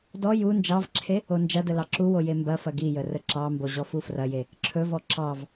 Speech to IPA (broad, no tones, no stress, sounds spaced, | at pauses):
d ɔ j u n d͡ʒ ɑ v ǁʰ e | o n d͡ʒ ɐ d ə l ɑ ǁ u w o j e m b ɐ f ɐ ɡ i j ə r ə ǁ ɑ m b o ʑ ɔ f u f r ɐ j e | ǁʰ ɵ v ɔ ǁ ɑ v